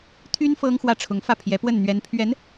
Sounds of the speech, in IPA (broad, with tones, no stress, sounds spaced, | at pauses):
t̪ʰ y˥ n f ɤ˥ ŋ x w ä˥˩ ʈ͡ʂʰ ʊ˧˥ ŋ f ä˥˩ pʰ j ɛ˧˥ p w ə˥˩ n n̪ ɥ ɛ˧˥ n pʰ ɥ ɛ˧˥ n